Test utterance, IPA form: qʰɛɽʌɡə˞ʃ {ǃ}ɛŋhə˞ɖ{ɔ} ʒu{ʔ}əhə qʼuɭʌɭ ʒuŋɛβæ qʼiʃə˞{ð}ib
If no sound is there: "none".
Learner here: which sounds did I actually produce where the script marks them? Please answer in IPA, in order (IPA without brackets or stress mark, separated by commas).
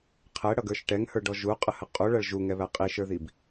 ʈ, ɔ, qʼ, ð